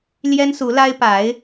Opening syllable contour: high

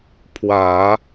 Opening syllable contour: low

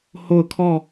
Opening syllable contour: falling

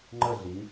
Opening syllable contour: falling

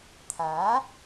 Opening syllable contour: rising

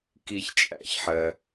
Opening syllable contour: low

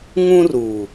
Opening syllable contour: high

